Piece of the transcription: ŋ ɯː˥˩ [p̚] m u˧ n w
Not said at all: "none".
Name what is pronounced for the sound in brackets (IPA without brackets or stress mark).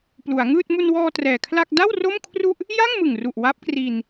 t̚